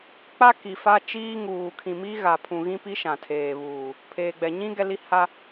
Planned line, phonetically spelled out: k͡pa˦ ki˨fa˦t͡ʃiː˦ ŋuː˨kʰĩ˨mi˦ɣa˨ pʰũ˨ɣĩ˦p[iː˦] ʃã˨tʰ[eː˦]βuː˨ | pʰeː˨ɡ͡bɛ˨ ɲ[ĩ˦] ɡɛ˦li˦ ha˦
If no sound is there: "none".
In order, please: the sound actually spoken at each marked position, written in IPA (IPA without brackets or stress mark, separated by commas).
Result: i˦, eː˨, ĩ˦